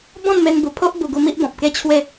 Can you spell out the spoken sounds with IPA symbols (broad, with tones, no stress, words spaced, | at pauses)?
bɔ̃˥˧nme˧nbu˨˩pʰo˦ʔ bu˧ɡu˧ mi˦ʔbɔ̃˨p̚ke˦ t͡ɕʰwe˥˧